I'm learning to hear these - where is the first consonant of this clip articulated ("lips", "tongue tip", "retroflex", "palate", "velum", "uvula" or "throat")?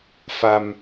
lips